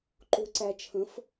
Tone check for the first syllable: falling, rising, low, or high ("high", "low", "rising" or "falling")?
low